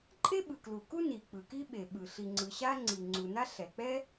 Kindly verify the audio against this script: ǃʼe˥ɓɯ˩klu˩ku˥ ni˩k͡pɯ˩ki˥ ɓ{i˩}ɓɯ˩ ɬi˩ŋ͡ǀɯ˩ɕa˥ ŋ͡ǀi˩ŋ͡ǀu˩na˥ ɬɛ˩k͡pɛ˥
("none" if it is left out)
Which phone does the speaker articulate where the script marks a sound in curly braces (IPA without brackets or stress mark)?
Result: e˩